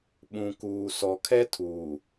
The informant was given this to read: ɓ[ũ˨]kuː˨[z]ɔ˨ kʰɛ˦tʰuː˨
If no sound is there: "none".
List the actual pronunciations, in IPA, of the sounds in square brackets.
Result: ũ˨, s

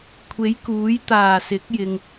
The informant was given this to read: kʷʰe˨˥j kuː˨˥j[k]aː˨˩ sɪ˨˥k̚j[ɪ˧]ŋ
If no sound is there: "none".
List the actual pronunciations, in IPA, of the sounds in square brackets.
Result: t̪, ɪ˨

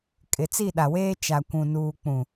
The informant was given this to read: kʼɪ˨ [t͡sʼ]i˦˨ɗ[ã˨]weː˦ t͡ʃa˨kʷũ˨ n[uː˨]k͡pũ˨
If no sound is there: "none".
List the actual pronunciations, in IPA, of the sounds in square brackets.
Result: t͡s, a˨, uː˨

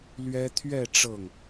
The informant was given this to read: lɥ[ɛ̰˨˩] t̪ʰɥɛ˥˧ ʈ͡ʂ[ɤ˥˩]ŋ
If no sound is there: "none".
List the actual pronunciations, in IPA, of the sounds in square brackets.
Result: ɛ˥, ɤ˥˩

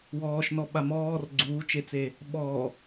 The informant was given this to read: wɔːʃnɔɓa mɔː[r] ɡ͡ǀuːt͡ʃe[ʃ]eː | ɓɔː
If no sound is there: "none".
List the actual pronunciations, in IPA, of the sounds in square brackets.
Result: r, t͡s

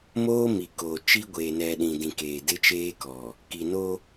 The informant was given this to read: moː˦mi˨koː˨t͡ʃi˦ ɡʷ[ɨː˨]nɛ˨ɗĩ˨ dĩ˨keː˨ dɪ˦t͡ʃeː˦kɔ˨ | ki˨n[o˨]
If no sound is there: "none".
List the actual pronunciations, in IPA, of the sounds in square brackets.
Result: eː˨, o˦

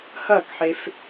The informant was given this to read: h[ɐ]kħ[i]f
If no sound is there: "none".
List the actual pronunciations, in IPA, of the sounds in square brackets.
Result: ɐ, e

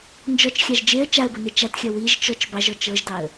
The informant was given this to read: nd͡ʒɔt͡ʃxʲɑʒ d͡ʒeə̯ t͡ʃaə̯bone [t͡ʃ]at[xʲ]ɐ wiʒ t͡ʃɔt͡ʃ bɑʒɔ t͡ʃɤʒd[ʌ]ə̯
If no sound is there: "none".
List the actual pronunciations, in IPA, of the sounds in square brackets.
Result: t͡ʃ, xʲ, ɑ

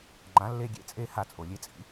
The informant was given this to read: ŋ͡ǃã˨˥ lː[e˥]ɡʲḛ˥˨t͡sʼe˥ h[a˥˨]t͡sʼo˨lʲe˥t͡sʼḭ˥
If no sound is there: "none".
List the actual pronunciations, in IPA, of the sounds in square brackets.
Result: e˥, a˥˨

